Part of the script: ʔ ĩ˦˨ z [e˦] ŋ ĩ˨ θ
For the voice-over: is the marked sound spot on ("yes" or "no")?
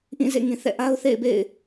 no